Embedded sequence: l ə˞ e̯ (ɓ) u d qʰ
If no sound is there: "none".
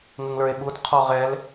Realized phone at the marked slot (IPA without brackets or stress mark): ɓ